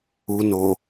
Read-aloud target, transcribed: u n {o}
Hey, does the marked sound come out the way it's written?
yes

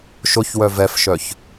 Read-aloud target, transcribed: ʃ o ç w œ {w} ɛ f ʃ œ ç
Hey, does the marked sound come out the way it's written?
no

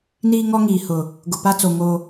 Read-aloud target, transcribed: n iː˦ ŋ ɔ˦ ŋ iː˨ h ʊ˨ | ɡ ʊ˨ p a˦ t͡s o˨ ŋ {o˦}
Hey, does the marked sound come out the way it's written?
yes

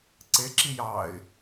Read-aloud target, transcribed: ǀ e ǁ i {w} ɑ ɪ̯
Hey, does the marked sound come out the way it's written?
no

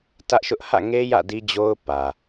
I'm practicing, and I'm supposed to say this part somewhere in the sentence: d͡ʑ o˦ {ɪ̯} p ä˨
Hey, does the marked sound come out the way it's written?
no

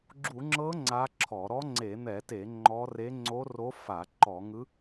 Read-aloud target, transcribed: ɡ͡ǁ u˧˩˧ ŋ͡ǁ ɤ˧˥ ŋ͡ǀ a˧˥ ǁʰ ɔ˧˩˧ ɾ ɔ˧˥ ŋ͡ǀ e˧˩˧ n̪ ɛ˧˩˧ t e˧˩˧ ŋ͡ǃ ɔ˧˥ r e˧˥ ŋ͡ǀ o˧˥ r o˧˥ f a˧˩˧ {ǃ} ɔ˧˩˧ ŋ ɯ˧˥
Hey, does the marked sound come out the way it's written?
yes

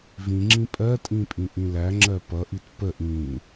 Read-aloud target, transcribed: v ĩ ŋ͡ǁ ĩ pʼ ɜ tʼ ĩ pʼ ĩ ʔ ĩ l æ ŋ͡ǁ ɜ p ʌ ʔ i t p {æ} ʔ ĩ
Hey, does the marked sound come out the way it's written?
no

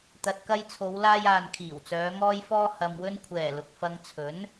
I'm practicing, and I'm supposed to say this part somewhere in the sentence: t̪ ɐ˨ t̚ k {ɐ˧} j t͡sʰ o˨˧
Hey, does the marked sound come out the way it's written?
yes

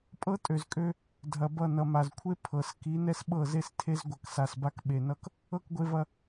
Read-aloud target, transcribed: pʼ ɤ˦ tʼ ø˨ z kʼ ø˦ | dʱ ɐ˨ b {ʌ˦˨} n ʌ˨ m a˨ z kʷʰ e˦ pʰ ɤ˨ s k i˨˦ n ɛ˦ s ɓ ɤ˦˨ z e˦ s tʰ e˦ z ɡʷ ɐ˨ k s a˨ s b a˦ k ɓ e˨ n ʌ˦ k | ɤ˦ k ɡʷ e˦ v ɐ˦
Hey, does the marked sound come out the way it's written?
yes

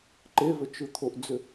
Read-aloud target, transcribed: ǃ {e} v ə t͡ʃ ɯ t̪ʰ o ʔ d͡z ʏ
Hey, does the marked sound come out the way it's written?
yes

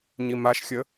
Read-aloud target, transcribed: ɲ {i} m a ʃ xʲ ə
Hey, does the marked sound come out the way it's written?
yes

